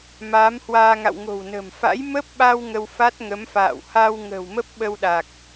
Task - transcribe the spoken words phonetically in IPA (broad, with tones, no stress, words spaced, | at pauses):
maː˨˦mhwaː˧ŋa̰˧˨w ŋo̤˨˩wnə̤˨˩m fa̰˧˥j mə˦˥p̚ɓa˧w ŋə˧wfa˦˥t̚ŋə˨˦mfa̰ː˧˨w ha˧w ŋə̤ː˨˩wmə˦˥p̚ɓə˧wɗa˨˩k̚